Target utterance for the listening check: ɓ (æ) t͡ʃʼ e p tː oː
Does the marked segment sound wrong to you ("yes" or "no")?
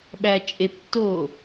no